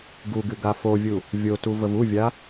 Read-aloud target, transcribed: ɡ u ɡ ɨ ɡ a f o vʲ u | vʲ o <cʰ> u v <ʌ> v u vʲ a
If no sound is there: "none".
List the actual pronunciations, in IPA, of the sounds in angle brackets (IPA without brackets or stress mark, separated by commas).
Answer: t, ə